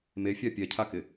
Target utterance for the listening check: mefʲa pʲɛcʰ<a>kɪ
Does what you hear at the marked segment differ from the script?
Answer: no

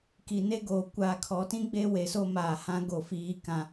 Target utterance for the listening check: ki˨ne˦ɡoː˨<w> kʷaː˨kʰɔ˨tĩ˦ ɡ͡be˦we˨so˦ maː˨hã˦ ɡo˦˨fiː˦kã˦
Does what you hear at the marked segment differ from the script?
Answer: yes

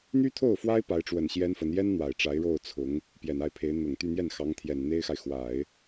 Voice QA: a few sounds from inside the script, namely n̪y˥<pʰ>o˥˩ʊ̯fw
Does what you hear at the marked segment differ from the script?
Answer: yes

